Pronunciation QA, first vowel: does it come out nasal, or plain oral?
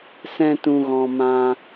nasal